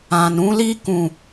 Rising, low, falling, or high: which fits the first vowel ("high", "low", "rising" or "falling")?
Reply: low